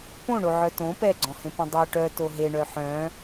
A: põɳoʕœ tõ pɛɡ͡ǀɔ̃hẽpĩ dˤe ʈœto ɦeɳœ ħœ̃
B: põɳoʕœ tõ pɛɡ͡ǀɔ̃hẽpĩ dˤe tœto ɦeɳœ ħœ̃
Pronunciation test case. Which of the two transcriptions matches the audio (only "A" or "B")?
A